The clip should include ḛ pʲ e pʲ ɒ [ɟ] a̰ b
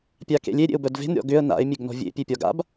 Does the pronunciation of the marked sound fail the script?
yes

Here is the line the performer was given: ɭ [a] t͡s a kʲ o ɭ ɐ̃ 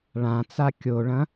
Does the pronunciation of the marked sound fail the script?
yes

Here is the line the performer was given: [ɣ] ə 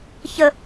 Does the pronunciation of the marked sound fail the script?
yes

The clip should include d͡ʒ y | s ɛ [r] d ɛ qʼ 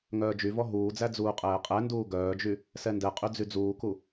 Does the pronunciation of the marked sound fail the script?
yes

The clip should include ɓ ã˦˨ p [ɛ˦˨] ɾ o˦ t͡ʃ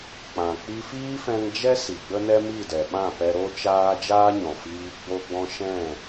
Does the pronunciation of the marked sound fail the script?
yes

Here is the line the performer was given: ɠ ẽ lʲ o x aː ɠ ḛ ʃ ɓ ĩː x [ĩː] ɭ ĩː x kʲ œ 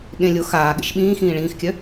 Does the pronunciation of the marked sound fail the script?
no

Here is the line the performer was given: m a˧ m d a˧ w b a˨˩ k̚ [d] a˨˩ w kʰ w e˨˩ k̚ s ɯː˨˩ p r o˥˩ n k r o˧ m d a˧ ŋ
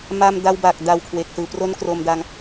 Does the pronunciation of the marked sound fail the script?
no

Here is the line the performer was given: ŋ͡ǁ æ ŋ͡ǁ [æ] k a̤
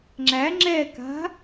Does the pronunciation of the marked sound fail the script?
yes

